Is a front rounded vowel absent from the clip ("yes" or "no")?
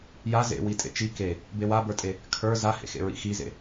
yes